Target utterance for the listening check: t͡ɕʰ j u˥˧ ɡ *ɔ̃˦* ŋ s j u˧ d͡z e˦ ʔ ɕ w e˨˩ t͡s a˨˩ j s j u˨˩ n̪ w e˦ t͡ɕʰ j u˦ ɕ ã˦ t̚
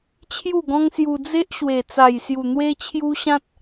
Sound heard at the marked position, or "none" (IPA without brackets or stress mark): ɔ̃˦